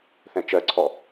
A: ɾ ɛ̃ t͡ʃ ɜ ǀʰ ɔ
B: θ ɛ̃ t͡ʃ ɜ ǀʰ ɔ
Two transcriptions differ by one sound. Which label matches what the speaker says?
B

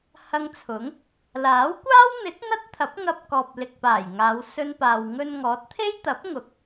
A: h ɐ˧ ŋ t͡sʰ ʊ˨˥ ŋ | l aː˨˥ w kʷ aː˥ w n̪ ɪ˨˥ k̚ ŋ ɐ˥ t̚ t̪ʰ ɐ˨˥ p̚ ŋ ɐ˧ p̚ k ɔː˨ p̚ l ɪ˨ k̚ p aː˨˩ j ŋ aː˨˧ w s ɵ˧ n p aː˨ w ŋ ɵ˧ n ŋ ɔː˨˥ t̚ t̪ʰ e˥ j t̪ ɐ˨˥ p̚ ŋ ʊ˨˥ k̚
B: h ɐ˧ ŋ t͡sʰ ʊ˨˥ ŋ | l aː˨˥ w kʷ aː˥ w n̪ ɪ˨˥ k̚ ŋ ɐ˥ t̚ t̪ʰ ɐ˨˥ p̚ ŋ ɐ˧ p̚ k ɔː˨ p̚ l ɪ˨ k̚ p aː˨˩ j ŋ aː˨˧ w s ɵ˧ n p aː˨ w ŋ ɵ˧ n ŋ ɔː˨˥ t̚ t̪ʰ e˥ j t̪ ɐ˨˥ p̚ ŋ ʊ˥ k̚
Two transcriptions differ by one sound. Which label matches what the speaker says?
A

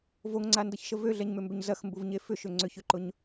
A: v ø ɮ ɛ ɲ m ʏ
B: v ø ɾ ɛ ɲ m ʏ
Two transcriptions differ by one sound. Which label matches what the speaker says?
A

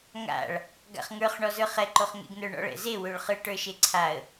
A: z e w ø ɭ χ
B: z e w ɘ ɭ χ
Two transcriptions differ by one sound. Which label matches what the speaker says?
A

